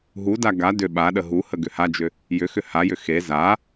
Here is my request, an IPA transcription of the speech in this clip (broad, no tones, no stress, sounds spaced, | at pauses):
ɦ u d a ɡ a d ʏ ɓ a ɗ ə ɦ u h ə ɡ ʏ h a d͡ʒ ʏ | j ʏ x ʏ h a j ʏ x e z a